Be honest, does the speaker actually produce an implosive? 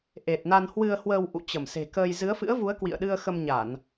yes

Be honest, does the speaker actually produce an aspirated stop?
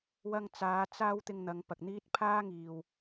yes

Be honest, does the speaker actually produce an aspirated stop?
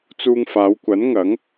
no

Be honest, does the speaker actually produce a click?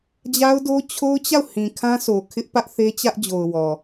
no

